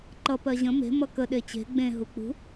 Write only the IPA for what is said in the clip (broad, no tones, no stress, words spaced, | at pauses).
ǃʌ pɜʑə̃ me̤ mʌkə ɗet͡ɕe̤ ɡ͡bẽ ɦuk͡pṳ